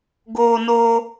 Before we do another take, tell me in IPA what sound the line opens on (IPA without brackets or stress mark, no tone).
ɡ